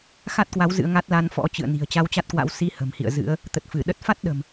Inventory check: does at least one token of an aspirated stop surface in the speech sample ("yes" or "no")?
no